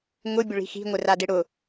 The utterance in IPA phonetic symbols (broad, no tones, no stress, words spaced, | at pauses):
ŋʊ bʲʊɭi̤xi̤ ŋʷɪradɪɽʊ